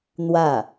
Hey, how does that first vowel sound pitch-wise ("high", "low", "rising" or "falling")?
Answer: falling